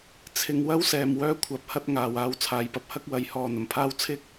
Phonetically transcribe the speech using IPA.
t͡sʰɪ˧ŋ wɐ˥wsɛː˨m wœː˥kʷʰɐ˨˥p̚hɐ˥t̚ŋaː˨w aː˧wt͡sʰaː˨˧jpɐ˨˥p̚ hɐ˥k̚wɐ˨˥j hɔː˨n̪ɐ˨˩mpʰaː˥w t͡sʰɪ˥k̚

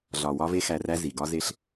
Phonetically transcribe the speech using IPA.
ɮɒ˨ wɒ˦ve˦xæ˧ræ˦ zi˨ɡɒ˦ze˦ɬ

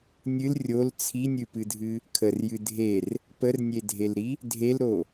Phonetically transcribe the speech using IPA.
nʲɨl rʲol t͡sʰinʲɨpɨdʱɨ | kʰərjɨ dʱer | pərnʲedʱelɾi | dʱelɾo

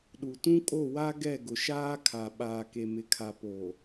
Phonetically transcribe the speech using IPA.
ɗu˨tũ˦kʼo˦˨wa˦ ɡɛ˦˨ɡʊ˨ʃaː˦kʰa˨ ɓaː˨ke˨mɪ˨kʰa˨ po˨

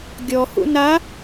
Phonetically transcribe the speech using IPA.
ɡʲɔhṵ na

